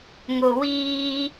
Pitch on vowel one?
low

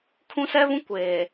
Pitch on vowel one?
high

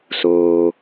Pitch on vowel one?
low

